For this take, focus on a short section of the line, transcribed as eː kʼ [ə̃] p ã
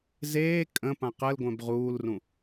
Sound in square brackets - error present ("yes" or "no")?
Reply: no